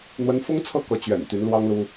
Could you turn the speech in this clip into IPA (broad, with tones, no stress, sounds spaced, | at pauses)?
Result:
n̪ w ə˧˥ n f ʊ˥ ŋ t͡sʰ ɤ˥˩ k ɤ˧˥ t͡ɕ ɥ ɛ̰˨˩ n t̪ y˧˥ n l w ɑ˥ ŋ l u˥